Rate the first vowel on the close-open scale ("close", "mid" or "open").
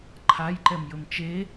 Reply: open